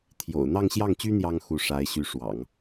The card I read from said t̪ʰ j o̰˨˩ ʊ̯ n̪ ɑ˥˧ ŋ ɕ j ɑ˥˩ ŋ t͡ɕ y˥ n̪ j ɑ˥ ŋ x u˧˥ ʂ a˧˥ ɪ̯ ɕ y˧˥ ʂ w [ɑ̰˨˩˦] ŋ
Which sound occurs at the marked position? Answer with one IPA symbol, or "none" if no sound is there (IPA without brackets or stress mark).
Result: ɑ̰˨˩˦